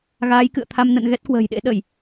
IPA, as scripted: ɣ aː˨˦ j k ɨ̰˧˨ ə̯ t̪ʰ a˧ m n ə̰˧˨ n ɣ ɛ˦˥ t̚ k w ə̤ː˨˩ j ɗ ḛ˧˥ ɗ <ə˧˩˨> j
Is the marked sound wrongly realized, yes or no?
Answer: no